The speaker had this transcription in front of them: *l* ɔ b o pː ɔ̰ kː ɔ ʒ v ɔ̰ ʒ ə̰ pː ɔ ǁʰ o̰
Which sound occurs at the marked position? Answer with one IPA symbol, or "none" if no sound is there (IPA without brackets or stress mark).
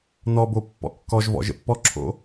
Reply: n